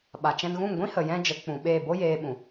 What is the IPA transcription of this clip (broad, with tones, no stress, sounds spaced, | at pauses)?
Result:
ɓ a˨ t͡ʃ ɛ̃˧ n ɣ ũ˦˨ ŋ ɡʷ ĩ˦ h ə˨ j ɛ̃˧ d͡ʒ ə˨˦ k͡p ũ˨ ɓ eː˦˨ b o˦ j eː˧ ɓ ũ˨